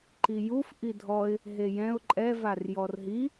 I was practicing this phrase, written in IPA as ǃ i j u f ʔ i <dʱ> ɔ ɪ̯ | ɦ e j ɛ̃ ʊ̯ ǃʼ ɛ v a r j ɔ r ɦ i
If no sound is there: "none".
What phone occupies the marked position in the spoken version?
dʱ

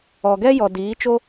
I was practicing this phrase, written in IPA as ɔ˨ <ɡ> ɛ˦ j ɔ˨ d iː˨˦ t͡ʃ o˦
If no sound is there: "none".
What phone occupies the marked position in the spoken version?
ɡ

